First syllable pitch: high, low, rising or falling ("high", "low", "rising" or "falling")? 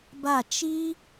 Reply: falling